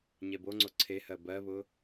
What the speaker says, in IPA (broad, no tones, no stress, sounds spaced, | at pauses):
ɲ ɛ b o ŋ͡ǀ o ǀʰ e h ɜ b ɜ β ʊ